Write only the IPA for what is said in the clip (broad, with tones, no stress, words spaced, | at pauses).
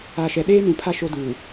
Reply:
a˨ ʃɛ˨ɗeː˦nũ˨ pʰa˦ ʃo˦ duː˨